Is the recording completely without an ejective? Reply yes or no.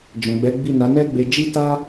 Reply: yes